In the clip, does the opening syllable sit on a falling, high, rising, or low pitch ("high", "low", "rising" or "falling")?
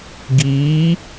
rising